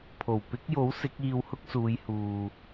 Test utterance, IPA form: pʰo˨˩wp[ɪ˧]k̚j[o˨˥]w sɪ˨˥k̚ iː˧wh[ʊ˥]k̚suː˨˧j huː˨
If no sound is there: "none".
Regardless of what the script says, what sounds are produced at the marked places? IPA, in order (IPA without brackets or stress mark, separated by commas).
ɪ˨˥, o˨˥, ʊ˥